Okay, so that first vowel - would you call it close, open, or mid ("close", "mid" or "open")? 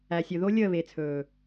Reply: open